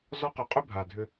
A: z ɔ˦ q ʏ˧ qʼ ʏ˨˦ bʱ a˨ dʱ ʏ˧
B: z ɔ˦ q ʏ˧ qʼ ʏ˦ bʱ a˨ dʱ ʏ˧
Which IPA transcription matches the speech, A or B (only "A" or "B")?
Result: B